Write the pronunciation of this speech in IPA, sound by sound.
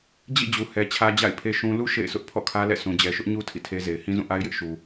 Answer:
d͡ʑ ḭ˦˨ d͡ʑ u˨ h ɛ˦ t͡ɕʰ ä˦ d͡ʑ a̰˦˨ ɪ̯ pʰ e˦ ʃ ũ˦ l u˦ ʃ ḛ˦˨ ɪ̯ s ʊ˦ ʔ pʰ ɔ̰˦˨ kʰ ä˦ l ɛ̰˦˨ s ũ˨ d͡ʑ ɛ˨ ʃ ʊ˦ ʔ ɲ u˦ tʰ ḭ˦˨ tʰ e˦ z e˨ ɪ̯ h ĩ˦ z ũ˦˨ ʔ a˦ ɪ̯ j ɪ˦ ʔ ʃ u˨

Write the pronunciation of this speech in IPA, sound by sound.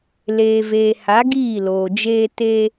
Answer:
l eː˨ v eː˨ h a˨˦ ɡ iː˦˨ l oː˨ d͡ʒ eː˦ t e˦

